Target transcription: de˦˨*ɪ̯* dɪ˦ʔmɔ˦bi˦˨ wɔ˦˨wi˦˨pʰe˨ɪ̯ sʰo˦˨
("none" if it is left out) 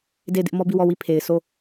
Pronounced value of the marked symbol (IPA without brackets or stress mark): ɪ̯